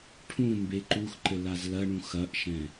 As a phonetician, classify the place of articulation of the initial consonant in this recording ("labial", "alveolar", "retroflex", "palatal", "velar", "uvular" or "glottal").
retroflex